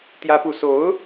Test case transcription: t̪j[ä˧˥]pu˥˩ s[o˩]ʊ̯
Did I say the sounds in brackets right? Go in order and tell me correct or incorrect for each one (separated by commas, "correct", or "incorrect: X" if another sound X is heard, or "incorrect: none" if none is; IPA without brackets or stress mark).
incorrect: ä˥, incorrect: o˧˥